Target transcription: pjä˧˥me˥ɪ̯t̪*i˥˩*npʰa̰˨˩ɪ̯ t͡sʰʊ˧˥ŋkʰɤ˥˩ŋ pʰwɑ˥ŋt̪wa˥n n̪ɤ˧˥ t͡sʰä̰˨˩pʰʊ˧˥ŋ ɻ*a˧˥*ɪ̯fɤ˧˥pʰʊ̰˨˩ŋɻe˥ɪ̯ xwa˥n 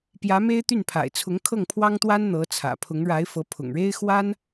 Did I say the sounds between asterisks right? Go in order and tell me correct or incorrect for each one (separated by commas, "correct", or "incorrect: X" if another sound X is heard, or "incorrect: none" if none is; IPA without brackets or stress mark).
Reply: incorrect: y˥˩, correct